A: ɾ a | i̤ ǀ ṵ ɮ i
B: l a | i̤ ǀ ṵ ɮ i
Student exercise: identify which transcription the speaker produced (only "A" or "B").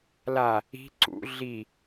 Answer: B